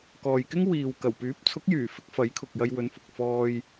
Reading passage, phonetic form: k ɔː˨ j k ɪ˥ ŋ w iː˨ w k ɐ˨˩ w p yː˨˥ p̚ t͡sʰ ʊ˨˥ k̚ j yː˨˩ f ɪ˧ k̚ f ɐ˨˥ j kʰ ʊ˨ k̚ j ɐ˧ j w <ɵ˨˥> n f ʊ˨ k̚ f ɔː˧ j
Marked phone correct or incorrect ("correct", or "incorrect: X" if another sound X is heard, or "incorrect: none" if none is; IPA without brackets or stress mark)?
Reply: correct